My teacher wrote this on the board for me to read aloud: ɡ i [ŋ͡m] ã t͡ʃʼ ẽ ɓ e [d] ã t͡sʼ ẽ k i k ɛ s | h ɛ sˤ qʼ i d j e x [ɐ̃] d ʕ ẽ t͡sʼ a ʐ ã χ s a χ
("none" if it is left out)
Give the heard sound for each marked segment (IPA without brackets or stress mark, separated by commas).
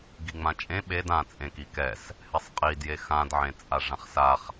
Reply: ŋ͡m, d, ã